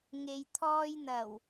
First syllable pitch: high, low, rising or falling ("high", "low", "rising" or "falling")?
low